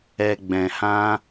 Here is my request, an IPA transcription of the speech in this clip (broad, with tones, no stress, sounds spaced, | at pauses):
ɛ˨ ɡ͡b ɛ̃˨ h ã˧